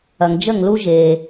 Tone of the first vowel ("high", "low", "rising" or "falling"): low